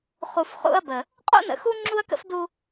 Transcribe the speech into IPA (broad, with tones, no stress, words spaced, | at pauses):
χu˨fχṵ˦ɐ̯bə˨ | qʼṵ˦nə̰˨xu˦ ŋ͡ǁu˦ɐ̯kə̰˦fdu˦